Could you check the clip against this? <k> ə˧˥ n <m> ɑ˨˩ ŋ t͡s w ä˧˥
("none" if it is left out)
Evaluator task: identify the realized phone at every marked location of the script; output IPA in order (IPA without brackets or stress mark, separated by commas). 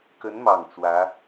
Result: k, m